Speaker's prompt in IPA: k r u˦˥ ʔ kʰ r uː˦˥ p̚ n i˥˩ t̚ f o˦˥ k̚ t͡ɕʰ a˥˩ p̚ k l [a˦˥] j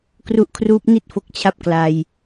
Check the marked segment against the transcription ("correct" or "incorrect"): incorrect